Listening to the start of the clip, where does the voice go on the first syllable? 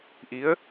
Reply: rising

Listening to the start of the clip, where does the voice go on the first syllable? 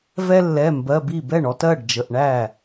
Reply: high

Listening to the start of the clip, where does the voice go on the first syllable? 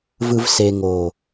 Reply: low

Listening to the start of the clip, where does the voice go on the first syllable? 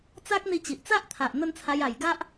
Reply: high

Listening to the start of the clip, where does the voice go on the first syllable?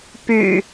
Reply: low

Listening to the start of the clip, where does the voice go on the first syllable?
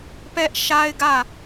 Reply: high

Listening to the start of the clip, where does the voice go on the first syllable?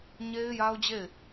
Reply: high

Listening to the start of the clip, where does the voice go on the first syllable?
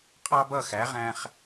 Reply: high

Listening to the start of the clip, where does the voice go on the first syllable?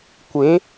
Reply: rising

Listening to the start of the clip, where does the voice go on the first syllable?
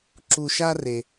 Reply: low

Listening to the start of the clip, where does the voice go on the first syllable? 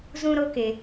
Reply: high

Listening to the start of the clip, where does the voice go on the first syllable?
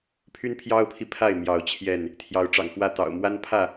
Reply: high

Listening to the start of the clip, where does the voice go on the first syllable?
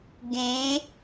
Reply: rising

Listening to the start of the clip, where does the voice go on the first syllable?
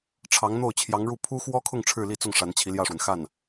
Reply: rising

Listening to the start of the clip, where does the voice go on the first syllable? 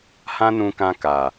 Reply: high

